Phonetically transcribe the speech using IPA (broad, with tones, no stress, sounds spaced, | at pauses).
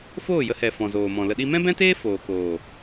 f oː˦˨ j ə˧ h ɛ˨ f ɔ̃˨ z oː˨ m ɔ̃˨ l ə˧ ɗ i˦ m ɛ̃˦ b ɛ̃˦ t eː˦ f oː˨ k oː˨